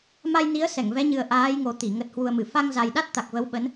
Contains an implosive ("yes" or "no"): yes